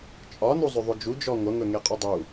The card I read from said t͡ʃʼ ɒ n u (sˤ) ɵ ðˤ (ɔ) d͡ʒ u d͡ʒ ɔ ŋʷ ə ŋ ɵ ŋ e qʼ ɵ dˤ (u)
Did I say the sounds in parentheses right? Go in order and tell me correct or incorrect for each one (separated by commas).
incorrect, incorrect, correct